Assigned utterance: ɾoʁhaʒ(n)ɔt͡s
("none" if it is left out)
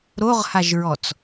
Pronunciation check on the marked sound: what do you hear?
ɹ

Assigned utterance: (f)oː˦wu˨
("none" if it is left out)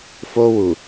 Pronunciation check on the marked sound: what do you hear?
f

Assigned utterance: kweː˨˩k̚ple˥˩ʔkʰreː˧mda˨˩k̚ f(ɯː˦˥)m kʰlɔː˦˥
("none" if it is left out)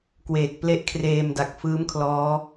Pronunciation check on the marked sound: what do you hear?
ɯː˦˥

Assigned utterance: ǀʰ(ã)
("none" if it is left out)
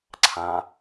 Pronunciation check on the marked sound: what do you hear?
ã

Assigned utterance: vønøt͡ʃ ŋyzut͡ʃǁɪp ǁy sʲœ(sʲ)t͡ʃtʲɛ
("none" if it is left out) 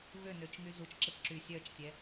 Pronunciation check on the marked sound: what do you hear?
none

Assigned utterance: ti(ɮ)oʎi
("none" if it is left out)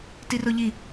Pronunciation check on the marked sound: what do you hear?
r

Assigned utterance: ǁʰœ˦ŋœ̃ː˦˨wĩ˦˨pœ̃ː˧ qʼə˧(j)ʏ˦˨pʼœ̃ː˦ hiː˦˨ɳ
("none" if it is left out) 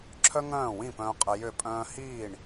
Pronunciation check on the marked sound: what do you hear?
j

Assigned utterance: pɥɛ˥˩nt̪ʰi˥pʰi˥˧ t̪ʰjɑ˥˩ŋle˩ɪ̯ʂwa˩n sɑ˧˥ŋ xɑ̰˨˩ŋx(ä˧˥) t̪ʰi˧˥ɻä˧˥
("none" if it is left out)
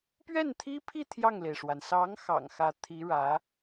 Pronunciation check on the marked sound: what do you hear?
ä˧˥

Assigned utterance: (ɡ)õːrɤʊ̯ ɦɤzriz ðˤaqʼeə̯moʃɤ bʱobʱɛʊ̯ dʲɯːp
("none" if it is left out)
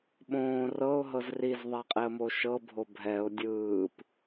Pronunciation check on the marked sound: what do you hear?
ɓ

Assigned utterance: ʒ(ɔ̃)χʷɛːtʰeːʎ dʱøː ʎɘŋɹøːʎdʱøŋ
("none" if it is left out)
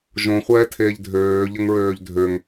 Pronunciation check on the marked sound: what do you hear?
õ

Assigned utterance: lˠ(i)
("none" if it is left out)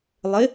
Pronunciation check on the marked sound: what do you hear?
ɪ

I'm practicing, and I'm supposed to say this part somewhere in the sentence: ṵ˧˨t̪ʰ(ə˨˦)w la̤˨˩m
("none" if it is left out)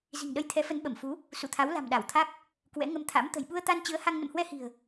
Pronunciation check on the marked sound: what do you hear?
a˨˦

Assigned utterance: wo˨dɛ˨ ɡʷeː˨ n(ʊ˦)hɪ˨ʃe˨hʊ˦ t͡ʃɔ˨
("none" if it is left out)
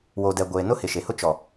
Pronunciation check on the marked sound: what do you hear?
ʊ˦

